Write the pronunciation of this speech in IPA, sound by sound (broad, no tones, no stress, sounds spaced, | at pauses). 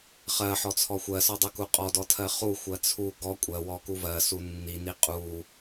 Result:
χ ɜ ħ ɔ t͡sʰ ɔ xʷ ɜ s ɔ dˤ u k u qʼ ɔ d ɔ tʰ ɜ χ u xʷ ɜ t͡sʰ u ɡ ɔ kʷʼ ɜ w ɔ k u v ɜ s u nː i n i qʼ u